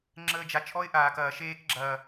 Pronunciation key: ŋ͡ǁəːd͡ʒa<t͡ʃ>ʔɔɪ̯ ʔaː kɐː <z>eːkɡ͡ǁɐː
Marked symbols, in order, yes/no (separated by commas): yes, no